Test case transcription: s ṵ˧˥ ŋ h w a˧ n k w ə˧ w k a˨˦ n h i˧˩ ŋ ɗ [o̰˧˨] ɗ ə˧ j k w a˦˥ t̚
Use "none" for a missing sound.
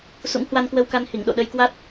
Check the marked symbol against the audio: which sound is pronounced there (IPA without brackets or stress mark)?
o̰˧˨